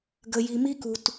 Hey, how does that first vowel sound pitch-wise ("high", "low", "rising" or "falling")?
low